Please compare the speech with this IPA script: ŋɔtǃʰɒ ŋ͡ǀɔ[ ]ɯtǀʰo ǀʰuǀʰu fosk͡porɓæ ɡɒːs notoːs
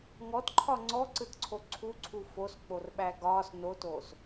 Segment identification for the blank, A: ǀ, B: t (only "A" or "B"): A